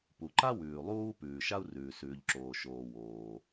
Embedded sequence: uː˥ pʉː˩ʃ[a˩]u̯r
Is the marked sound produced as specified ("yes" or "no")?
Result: no